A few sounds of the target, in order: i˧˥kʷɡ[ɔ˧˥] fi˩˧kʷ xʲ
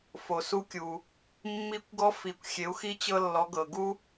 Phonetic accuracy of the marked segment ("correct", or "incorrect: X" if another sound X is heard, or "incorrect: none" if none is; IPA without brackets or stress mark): correct